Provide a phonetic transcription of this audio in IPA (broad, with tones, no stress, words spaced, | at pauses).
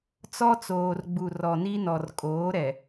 t͡sɔ˦t͡soː˨rɡ͡bu˨ rɔ˨ni˦nɔ˨r kʼoː˨˦ɾɛ˨